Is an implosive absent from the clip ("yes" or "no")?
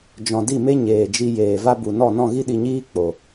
no